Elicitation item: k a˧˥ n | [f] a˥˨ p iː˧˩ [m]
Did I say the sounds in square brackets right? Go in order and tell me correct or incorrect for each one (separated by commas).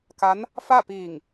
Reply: correct, incorrect